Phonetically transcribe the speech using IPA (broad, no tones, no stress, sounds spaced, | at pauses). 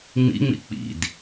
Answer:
ŋ͡m ḭ ŋ͡m ḭ k͡p ḭ d